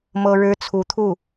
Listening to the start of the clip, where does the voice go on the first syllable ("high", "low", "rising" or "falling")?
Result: high